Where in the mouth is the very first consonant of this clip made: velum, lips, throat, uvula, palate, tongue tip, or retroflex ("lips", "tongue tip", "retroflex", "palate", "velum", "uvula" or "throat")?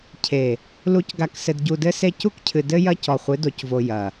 palate